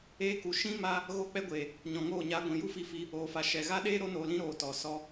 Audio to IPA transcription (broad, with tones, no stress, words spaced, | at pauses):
eː˧ku˨ ʃĩ˦ ma˦ | ɣo˧k͡pɛ˧ɡʷeː˨ | ɲɔ̃˨ŋoː˦˨ɲaː˧ ɡʷĩ˨ju˦fi˧fi˧ | oː˨fa˨ ʃɛ˨ɣa˦ ɗeː˦ ɾo˧noː˨lĩ˧ ɾoː˨tɔ˨ sɔ˧